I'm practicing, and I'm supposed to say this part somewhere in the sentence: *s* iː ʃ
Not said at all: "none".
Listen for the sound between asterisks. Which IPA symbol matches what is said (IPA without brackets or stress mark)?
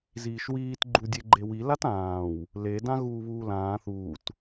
z